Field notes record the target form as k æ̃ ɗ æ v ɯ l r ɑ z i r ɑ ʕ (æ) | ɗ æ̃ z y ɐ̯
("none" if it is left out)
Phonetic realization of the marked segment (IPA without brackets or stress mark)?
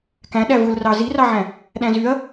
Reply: æ̃